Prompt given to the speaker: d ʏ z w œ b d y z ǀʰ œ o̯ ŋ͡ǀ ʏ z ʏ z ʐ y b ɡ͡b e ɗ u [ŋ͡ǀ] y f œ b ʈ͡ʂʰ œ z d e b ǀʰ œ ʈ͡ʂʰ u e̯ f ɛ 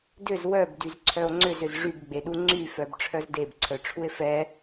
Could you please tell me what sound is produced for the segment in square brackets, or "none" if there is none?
ŋ͡ǀ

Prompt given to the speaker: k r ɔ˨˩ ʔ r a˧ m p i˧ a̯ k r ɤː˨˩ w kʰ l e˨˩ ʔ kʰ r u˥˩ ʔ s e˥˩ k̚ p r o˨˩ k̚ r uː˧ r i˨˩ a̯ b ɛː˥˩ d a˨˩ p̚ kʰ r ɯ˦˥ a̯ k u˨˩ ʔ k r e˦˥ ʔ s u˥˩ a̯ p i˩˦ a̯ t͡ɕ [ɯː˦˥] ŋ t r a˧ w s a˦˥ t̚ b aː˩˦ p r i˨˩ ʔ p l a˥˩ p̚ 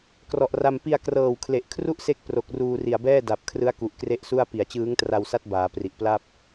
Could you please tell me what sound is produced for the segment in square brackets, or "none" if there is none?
ɯː˦˥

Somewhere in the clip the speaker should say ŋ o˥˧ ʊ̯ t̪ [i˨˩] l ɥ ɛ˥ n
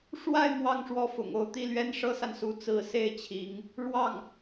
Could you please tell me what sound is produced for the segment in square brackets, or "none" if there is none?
i˥˩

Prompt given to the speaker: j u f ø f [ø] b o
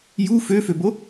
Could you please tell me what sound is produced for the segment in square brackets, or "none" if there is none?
ø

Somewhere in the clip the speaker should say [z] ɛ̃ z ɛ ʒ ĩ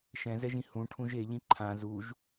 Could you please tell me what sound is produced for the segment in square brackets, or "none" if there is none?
ʃ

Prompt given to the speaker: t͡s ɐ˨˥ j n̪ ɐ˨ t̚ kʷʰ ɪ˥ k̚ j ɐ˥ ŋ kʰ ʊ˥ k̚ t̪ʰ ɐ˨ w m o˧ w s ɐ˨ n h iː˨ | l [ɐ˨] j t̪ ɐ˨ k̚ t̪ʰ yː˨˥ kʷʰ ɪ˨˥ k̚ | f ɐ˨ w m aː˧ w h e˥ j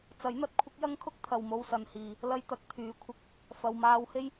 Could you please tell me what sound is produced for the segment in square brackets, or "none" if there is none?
ɐ˥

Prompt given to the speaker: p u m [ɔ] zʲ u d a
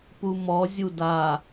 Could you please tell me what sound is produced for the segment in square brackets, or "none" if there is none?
ɔ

